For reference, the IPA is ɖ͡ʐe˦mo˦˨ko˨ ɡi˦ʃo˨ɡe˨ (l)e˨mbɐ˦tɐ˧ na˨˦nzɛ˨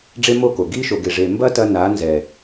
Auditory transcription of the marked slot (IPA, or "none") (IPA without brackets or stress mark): ʐ